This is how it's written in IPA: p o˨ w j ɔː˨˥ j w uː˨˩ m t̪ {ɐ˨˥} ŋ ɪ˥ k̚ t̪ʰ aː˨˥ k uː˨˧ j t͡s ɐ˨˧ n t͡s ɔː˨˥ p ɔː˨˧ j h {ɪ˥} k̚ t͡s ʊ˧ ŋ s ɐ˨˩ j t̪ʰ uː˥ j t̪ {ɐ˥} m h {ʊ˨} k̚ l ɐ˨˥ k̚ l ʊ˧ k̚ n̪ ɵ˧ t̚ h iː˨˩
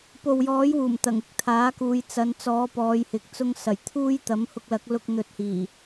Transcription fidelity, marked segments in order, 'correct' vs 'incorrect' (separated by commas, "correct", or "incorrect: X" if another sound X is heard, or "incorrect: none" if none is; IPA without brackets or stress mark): incorrect: ɐ˨˩, incorrect: ɪ˨, incorrect: ɐ˨˥, incorrect: ʊ˧